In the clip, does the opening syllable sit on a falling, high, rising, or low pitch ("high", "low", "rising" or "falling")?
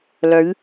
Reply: rising